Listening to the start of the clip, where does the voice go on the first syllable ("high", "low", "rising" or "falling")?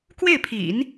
falling